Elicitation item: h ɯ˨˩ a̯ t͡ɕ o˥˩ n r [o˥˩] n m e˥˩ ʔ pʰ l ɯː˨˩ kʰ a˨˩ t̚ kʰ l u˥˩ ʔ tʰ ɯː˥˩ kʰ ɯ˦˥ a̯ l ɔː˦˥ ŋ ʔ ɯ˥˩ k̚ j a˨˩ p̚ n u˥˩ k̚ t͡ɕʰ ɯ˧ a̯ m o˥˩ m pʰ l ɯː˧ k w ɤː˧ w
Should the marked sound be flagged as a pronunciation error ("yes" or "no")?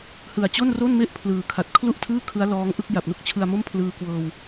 no